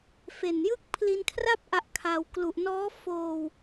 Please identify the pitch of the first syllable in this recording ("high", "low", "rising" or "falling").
low